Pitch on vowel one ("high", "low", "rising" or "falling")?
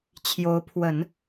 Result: rising